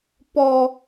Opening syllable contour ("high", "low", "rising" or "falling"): high